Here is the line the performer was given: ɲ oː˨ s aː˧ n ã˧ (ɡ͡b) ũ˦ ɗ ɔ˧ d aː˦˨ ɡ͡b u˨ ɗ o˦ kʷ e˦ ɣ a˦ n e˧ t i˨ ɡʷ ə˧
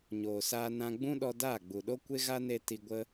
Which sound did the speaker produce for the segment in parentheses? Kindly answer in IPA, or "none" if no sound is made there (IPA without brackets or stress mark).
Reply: ɡ͡b